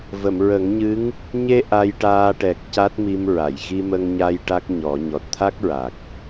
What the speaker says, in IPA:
v ə˨˩˨ m ɹ ə˨˩˦ ŋ ɲ ɨ˧˥ ŋ | ɲ e˧ ʔ a˧ j ʈ aː˧ ʈ ɛ˨˩ k̚ c a˦˥ t̚ m i˧ m ɹ a˨˩˨ j ɣ i˧ m ə˧ ŋ ɲ a˧ j ʈ a˦˥ k̚ ɲ ɔ˨˩˦ ɲ ɔ˨˩ t̚ t̪ʰ a˦˥ k̚ ɹ a˨˩ k̚

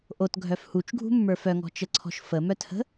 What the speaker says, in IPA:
ʔ o t ɡʱ œ f h u t͡ʃ ɡʱ ṳ mː ə˞ f œ ŋ ɔ̤ t͡ʃ ə ǀʰ ɔ̤ ʃ f ə m œ t h ə̤

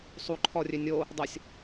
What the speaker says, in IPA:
sˤ u ǃʰ ɔ rʲ ø nʲ o | dˤ ə sʲ

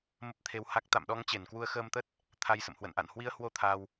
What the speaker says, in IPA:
m ə˦˥ p̚ t̪ʰ e˧ w h a˦˥ k̚ t̪ a̰˧˨ m ɗ ɔ˧ ŋ t͡ɕ e˧˩ n k w u˧ ə̯ x əː˧ m t̪ ə˦˥ t̚ | t̪ʰ a˧ j s ə̰˧˨ m h w ə̰˧˨ n ʔ a̰˧˨ n h w i˧ ə̯ h w o˧ t̪ʰ aː˧ w

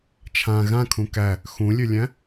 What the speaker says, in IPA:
t͡ʃʰ ã ɣ ã kʰ ũ k æ | x ũ lʲ ø lʲ æ̃

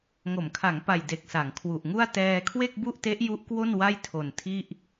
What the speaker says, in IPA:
ŋ o˩˦ m kʰ a˩˦ ŋ p a˨˩ j d e˨˩ k̚ s a˩˦ ŋ kʰ w u˨˩ ʔ ŋ u˥˩ a̯ t ɛː˧ kʰ w e˥˩ k̚ b u˥˩ ʔ t e˦˥ ʔ j u˦˥ ʔ k w o˥˩ n w a˥˩ j tʰ o˨˩ n tʰ i˥˩ ʔ

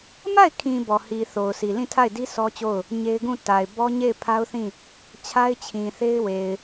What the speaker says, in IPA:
m a˦˨ ɪ̯ kʰ ĩ˨ b ɔ˨ h i˨ θ o˨ ʊ̯ s i˨ l ĩ˦˨ tʰ a˦˨ ɪ̯ d i˦ s ɔ˦ t͡ɕ o˦˨ ʊ̯ | ɲ e˦ ɪ̯ ɡ ũ˦˨ t a˨ ɪ̯ b ɔ˦ ɲ e˦˨ ɪ̯ pʰ a˦ ʊ̯ θ ĩ˦˨ | t͡ɕʰ a˦ ɪ̯ t͡ɕʰ ĩ˨ θ e˦ ɪ̯ w e˨ ɪ̯

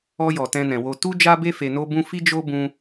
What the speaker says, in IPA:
ɔ˧ j ɔ˨ t ɛ̃˧ n ɛ̃˨ w o˧ t u˦ d͡ʒ a˦ b e˦ f e˧ n o˦ b ũ˦ f i˦ d͡ʒ o˦ b ũ˦

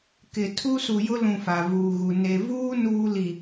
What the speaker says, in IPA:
k ɪ˨ tʰ u˦ s u˨ j ʊ˦ l ũ˨ f a˨ v uː˨ ɣ u˨ n e˨ v uː˦ n uː˦ l i˨

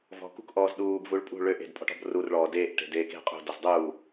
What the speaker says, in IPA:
v ɔ̤ k ṳ k ʔ ɔː z ɗ uː b v u ɭ pʼ ṳ ɭ ø ʔ e̤ d pʼ ɔ̤ ʈ ɔ̤ b r u r ɭ ɔː d eː ʔ ʈ e̤ d eː k e̤ qʼ ṳ d ɔ z dˤ uː

